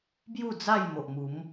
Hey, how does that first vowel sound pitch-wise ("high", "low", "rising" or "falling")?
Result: falling